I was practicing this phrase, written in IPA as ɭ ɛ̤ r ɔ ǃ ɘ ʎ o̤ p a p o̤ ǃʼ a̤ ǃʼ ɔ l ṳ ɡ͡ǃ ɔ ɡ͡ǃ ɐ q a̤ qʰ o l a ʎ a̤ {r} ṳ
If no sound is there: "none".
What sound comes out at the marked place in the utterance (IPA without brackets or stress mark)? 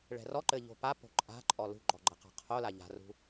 r